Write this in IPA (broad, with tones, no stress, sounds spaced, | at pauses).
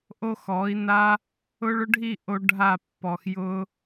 ʔ o˦ x ɔ˩˥ i̯ n a˦ | ʊ˦ ɭ ʊ˦ ɖʱ i˥˨ ʔ o˦ ɖʱ a˥˨ pː ɔ˨ x j ʊ˦